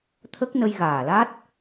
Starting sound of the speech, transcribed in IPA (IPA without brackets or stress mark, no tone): t̪ʰ